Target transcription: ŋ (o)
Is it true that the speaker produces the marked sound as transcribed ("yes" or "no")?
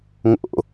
no